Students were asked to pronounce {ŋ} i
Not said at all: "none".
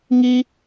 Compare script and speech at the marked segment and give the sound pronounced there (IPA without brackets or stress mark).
ŋ